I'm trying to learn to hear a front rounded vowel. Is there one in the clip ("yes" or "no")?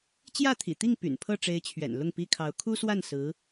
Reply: yes